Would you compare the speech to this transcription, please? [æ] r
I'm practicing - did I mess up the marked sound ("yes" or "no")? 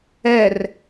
yes